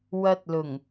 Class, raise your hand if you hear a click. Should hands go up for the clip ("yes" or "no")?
no